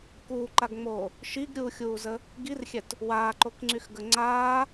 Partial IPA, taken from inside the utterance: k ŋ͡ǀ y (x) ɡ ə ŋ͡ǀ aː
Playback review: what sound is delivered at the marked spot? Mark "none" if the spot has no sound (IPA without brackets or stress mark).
x